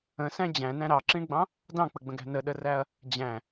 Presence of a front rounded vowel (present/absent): absent